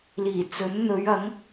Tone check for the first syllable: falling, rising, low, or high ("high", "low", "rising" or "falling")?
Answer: low